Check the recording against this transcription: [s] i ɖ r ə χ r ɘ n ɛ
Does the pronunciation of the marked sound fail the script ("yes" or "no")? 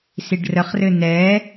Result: no